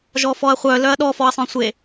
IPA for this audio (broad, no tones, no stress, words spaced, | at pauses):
ʒɔfɔɐ̯χʷœ lœɐ̯ɗɔ fɔɐ̯sˤœ̃sʷe